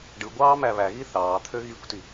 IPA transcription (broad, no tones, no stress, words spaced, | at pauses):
ɖɯɡʷɑː mæβæɣi θɑːt̪ʰø ɣikʷti